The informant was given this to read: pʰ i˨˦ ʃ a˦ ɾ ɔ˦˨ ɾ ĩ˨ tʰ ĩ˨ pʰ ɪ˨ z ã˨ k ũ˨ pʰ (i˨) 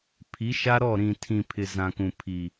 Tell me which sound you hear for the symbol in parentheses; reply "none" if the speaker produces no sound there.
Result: i˨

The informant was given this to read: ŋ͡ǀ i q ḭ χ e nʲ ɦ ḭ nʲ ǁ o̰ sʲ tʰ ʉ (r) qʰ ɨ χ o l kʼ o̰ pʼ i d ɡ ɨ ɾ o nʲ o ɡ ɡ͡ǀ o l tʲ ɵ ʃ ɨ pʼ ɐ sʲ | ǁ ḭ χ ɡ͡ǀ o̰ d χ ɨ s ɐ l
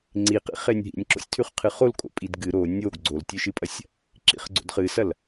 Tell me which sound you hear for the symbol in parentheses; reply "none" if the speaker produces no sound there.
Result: χ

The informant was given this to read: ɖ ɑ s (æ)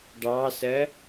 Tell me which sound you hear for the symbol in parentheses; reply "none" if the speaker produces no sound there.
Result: ɜ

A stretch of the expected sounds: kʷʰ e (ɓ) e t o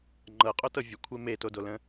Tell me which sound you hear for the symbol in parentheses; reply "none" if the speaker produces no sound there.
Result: m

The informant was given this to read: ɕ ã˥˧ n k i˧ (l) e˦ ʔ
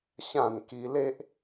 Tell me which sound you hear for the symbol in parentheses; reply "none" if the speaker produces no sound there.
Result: l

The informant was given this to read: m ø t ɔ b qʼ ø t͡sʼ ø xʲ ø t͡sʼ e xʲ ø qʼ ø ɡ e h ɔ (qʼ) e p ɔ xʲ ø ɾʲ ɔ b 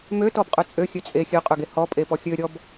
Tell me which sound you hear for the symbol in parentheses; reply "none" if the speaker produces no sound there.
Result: pʼ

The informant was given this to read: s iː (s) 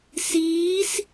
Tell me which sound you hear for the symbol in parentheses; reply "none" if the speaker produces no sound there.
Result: s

